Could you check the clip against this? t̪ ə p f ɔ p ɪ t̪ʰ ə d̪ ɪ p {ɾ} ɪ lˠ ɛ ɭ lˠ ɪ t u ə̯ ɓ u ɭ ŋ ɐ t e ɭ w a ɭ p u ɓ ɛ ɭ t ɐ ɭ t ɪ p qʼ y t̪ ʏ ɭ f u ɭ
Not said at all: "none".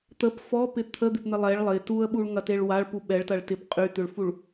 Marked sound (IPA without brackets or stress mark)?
n̪